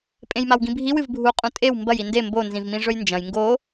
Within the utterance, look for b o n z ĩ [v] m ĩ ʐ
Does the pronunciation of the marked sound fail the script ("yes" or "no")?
no